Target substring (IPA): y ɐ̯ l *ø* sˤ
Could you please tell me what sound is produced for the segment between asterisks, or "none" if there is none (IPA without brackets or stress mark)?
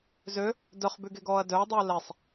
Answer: ɛ